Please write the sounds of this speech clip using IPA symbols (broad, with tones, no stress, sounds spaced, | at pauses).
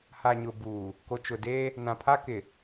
h a˨ ɲ ʊ˨ b uː˨ | k o˨ t͡ʃ ʊ˨ d eː˦ | n ã˨ pʰ a˦ k ɪ˨